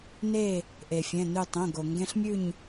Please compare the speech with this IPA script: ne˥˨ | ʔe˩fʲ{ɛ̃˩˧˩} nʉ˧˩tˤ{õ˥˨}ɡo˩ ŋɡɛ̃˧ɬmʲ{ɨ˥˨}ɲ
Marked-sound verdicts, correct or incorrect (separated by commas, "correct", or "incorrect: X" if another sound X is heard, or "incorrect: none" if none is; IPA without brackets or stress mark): correct, incorrect: õ˩˧˩, incorrect: ʉ˥˨